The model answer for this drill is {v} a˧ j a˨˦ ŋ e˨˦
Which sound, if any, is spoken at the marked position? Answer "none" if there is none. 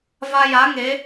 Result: v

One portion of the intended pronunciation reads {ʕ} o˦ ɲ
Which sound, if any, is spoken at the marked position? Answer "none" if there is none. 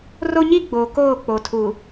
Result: r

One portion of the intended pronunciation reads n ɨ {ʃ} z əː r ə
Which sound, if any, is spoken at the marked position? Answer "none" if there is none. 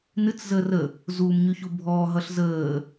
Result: t͡s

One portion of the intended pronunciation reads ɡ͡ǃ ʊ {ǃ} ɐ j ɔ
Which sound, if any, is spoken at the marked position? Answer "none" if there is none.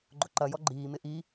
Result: ǃ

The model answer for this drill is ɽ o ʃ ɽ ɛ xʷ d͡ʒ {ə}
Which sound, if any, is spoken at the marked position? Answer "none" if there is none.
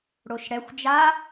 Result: a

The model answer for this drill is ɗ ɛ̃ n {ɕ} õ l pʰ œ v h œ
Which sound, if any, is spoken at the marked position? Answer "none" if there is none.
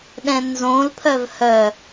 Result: z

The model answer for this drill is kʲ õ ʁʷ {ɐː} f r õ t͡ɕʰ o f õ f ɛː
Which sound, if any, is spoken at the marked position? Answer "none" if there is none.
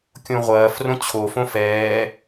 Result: ɐː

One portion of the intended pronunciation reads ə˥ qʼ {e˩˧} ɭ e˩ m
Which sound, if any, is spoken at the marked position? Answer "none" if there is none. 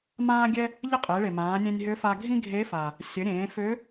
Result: e˩˧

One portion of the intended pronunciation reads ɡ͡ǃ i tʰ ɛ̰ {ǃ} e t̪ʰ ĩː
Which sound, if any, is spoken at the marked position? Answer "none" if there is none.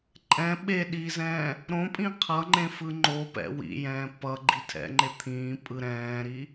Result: ŋ͡ǃ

